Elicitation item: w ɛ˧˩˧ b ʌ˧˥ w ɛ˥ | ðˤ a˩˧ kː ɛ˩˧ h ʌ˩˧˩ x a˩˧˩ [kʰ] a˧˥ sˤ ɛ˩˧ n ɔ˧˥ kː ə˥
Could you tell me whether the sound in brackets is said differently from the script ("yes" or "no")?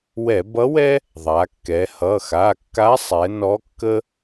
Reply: yes